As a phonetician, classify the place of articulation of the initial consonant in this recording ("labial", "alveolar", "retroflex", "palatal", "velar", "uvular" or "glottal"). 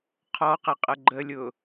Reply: uvular